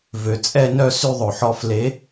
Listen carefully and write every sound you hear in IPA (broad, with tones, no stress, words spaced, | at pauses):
vø˨˩˦t͡sʼɛ˥˧nœ˥˧ sy˥˧ðˤo˨ħɔ˧˥ fle˧˥